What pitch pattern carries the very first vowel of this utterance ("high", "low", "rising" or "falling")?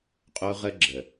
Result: high